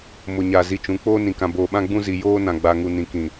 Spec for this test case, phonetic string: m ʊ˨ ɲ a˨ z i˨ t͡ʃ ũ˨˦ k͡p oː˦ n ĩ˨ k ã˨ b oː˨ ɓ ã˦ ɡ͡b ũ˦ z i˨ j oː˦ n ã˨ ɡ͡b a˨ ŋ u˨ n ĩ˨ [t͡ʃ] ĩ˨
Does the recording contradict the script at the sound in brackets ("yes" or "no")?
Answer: yes